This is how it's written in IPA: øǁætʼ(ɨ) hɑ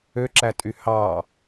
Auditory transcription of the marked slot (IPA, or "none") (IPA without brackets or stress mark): y